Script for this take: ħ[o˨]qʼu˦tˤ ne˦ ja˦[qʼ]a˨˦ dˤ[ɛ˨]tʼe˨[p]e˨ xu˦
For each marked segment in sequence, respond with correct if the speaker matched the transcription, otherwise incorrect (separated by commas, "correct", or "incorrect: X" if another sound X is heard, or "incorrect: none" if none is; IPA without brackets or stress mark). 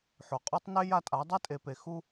correct, incorrect: tʼ, incorrect: ɛ˦, correct